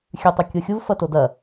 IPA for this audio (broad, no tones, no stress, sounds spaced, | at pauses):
xʲ ʉ tˤ o kʲ o xʲ u v f ɐ t o d ɐ